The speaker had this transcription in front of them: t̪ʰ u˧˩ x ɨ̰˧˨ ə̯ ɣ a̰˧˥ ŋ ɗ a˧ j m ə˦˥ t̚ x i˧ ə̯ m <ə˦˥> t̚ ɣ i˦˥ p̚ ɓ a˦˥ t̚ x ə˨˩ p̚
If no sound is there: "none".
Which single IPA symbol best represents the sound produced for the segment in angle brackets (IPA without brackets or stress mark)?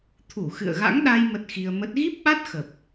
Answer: ə˦˥